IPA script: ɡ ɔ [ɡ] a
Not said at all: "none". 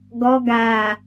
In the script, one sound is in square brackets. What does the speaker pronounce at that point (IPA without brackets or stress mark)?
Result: ɡ